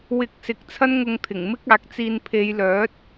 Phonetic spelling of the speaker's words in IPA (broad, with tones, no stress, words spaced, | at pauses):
wɪ˧k̚sɪ˨˥k̚ t͡sʰɐ˥nŋʊ˧ŋt̪ʰɪ˨˩ŋ mɪ˥k̚aː˨˥k̚ t͡siː˨n pʰe˨˧jlœː˨˥t̚